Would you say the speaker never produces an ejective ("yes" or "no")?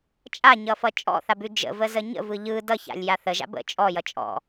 no